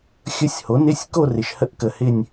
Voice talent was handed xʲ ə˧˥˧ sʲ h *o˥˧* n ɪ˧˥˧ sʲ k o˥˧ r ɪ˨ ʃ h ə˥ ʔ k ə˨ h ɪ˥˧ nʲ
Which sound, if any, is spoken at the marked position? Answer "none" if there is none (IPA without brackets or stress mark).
o˩˥